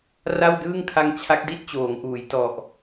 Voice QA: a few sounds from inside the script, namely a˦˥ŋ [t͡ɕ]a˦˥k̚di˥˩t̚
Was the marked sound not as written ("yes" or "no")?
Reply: yes